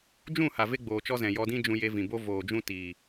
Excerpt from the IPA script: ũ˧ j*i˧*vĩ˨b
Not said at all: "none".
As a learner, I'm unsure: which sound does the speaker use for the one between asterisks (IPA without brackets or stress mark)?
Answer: e˧